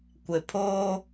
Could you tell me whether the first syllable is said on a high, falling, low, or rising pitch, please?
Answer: low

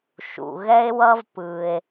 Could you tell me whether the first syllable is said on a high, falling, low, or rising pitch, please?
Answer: low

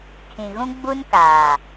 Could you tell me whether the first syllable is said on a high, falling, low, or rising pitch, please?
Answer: low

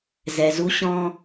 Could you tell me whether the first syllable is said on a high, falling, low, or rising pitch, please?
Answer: low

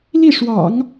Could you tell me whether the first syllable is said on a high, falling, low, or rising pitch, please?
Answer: falling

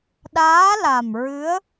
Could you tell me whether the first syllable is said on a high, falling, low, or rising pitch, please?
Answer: rising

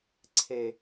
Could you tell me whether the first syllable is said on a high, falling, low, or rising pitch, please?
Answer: low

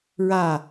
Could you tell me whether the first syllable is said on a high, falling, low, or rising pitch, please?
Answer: falling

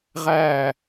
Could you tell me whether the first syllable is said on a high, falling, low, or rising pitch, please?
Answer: falling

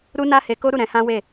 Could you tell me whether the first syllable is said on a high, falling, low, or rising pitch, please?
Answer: high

